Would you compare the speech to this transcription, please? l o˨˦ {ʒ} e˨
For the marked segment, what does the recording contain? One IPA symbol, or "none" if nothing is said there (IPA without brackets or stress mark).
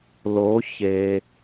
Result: ç